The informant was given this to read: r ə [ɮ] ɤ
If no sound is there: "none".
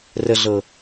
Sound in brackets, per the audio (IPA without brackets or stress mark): ɮ